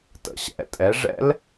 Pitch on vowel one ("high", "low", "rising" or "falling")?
low